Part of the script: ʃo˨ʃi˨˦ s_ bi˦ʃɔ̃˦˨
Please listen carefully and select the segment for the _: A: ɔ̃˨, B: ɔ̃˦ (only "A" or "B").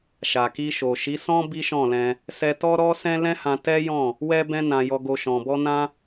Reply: B